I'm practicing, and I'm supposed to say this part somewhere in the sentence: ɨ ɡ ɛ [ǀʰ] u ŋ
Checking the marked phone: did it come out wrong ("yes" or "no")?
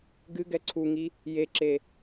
no